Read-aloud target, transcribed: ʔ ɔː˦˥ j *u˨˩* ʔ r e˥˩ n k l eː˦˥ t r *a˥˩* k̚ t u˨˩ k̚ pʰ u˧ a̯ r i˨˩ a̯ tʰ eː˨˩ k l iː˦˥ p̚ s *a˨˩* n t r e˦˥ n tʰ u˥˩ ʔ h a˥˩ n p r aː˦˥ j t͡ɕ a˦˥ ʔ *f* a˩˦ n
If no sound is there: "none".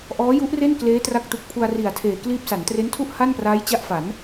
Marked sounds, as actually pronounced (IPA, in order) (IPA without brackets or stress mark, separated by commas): u˦˥, a˦˥, a˩˦, f